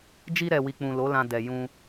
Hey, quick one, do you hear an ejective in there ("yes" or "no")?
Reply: no